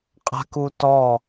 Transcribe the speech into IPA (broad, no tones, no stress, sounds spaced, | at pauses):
qʼ a̤ k u t ɔ